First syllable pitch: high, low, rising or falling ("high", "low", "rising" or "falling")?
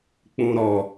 low